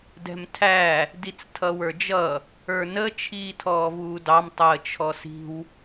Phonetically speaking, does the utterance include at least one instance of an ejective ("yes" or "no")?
no